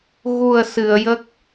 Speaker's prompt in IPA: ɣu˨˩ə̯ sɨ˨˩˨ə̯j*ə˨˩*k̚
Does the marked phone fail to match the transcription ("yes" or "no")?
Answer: yes